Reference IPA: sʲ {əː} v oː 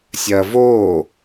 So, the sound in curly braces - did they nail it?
no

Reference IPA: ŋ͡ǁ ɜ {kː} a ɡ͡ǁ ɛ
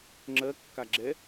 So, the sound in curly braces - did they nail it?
yes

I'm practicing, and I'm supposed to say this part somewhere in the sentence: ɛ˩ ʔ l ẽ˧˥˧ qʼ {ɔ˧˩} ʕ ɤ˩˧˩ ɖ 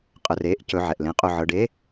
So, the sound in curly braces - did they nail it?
no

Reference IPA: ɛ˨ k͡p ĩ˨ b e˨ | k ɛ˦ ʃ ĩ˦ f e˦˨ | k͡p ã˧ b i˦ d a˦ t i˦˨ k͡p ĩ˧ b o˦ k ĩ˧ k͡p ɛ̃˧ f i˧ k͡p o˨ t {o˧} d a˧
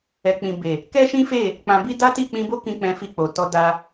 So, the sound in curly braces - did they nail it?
no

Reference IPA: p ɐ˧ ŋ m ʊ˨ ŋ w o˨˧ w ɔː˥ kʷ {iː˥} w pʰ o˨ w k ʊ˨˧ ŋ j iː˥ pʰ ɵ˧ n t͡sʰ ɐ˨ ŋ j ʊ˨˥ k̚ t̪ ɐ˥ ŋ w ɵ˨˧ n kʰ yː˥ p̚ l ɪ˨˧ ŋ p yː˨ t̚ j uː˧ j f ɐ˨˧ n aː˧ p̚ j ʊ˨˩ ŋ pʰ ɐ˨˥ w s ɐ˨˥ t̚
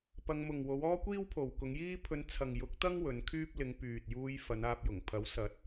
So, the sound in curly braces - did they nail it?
yes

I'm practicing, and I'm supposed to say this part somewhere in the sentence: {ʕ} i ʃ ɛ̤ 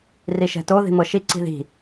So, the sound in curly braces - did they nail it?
no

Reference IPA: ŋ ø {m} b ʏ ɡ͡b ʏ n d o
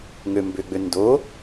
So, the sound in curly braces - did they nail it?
yes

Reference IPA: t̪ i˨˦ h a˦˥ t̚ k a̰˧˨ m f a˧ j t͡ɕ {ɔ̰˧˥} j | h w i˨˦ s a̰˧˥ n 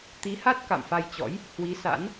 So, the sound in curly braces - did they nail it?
yes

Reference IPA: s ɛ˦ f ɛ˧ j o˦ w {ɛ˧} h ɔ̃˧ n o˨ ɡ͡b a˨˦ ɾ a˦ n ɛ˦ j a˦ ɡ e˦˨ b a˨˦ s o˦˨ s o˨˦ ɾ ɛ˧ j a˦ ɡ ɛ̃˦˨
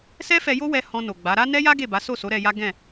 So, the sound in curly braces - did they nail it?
yes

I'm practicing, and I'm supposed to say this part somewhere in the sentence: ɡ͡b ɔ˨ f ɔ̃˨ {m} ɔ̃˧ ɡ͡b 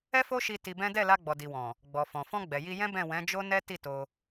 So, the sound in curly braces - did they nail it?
no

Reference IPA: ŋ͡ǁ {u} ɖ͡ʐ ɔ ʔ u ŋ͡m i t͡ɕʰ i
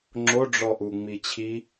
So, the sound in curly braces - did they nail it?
no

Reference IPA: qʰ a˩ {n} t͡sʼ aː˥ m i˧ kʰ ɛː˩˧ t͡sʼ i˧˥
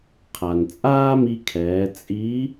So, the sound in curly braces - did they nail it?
yes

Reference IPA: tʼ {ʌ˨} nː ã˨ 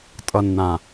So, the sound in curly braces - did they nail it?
yes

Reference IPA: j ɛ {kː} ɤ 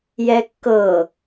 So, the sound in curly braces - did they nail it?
yes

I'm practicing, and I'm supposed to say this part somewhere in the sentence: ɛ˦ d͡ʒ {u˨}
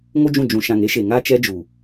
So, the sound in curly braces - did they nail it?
yes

